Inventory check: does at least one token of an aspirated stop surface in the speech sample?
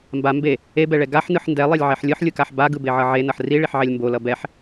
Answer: no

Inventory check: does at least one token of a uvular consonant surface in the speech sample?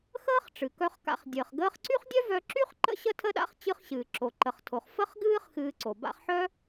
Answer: yes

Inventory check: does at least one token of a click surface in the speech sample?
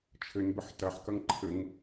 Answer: yes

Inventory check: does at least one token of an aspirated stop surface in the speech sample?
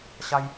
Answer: no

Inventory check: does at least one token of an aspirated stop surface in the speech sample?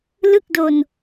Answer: no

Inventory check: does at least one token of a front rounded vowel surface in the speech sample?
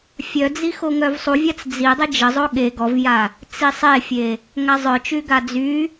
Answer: yes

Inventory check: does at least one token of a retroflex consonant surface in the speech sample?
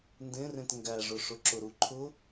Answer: yes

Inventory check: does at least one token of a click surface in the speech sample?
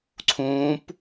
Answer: yes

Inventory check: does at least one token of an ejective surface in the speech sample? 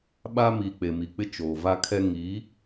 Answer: no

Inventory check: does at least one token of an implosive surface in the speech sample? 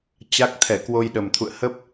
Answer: yes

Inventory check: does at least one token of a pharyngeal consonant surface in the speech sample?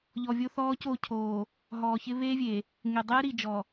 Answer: no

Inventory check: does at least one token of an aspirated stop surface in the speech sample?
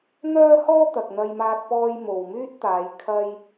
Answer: yes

